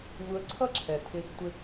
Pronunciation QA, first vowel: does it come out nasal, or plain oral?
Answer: oral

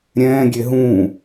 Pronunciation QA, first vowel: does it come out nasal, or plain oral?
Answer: nasal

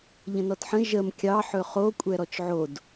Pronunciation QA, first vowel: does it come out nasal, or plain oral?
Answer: nasal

